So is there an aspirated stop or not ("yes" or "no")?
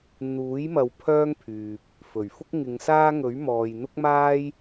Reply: yes